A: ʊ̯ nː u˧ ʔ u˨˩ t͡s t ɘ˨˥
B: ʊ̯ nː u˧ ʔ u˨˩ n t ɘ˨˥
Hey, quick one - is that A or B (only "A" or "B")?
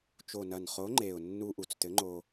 A